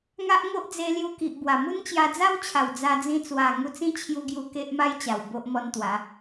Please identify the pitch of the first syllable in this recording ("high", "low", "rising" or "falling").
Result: high